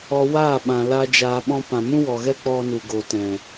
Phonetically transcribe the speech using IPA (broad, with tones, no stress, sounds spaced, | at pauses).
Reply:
ɔ˧ w aː˦˨ ɓ ã˨ l a˦ d͡ʒ aː˧ ɓ ɔ̃˦ p ã˨ m ũ˦ w ɔ˨ ɣ ɛ˦ k͡p ɔ˦ n u˨ ɡ o˨ t ɛ̃˨